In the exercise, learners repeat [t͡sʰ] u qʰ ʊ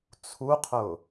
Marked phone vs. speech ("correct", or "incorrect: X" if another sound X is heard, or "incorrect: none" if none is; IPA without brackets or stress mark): correct